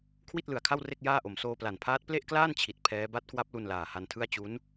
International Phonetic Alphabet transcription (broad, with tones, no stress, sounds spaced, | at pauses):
kʰ w i˥˩ t̚ l ɯ˨˩ a̯ kʰ a˥˩ w r e˥˩ k̚ j aː˥˩ ʔ o˨˩ m s oː˧ p l a˨˩ n pʰ aː˦˥ t̚ p l e˥˩ ʔ k l aː˥˩ n t͡ɕʰ i˨˩ t̚ pʰ ɛː˦˥ b a˦˥ t̚ k w a˦˥ p̚ l u˧ n l aː˨˩ h a˧ n tʰ ɯ˥˩ a̯ t͡ɕ u˦˥ n